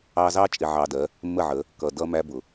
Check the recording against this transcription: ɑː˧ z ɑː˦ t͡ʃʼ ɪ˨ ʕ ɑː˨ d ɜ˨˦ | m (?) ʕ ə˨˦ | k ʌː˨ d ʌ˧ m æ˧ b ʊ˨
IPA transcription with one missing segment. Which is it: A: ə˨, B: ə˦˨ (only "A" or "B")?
B